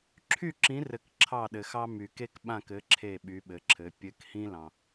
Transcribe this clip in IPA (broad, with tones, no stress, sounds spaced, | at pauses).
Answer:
ǁʰ y˦˨ ǁ ĩ˨˦ r ɘ˨ k ǁʰ ɑ˦˨ ɗ ɘ˨ x ɑ˦ m y˨ k e˦ k ɓ ã˦˨ k ɘ˨˦ ǁʰ e˦˨ ɓ y˨˦ ɓ ɘ˨˦ ǁʰ ɘ˨˦ pʲ ɘ˨˦ k h ĩ˦ l ɑ̃˨